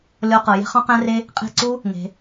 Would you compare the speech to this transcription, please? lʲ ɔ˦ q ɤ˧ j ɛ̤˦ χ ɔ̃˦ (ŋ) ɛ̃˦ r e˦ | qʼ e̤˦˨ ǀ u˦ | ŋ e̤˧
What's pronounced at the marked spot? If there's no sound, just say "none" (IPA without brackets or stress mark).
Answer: q